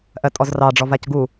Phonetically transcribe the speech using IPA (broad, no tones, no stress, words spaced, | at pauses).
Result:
ʔɜtʼɔzrɑ ɖ͡ʐɔvacɡu